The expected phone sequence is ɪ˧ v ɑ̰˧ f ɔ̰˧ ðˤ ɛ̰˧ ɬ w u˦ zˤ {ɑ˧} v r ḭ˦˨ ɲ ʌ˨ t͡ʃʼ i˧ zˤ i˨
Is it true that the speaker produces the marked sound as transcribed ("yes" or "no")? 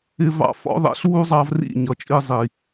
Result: yes